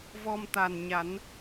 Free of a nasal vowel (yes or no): yes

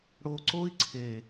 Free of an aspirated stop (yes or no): no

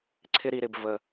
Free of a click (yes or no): no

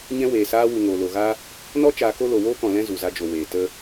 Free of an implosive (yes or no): yes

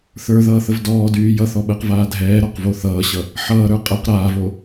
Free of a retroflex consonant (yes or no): yes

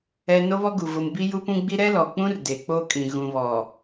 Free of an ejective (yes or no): no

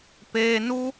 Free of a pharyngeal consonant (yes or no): yes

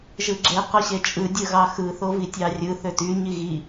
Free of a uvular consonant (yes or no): no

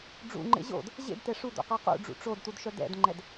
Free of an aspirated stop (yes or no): yes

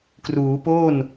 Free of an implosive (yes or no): yes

